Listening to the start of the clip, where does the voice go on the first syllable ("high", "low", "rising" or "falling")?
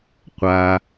low